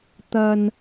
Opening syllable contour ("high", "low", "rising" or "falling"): low